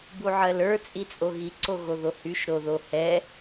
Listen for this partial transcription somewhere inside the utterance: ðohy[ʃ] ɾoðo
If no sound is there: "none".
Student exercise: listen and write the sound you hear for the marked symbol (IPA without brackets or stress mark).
ʃ